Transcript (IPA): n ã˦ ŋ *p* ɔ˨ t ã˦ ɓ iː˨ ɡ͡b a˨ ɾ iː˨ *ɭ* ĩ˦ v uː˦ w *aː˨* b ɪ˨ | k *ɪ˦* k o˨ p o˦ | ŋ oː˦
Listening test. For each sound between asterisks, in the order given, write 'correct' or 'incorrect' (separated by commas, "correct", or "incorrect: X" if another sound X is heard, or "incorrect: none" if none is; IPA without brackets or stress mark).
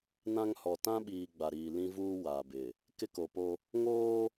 incorrect: h, incorrect: l, correct, correct